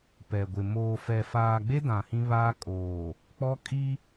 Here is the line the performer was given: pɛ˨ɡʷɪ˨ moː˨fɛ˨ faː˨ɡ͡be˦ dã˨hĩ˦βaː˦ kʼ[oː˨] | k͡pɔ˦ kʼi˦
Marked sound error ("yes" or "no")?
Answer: no